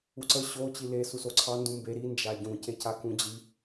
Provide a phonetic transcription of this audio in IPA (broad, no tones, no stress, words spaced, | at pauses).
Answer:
uǀə ɕo t͡ɕile susoǀʰɑ ndũmbe ɾi nd͡ʒaɟũ cecakũd͡ʑi